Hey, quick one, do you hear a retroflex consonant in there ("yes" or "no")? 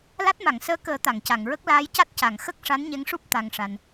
yes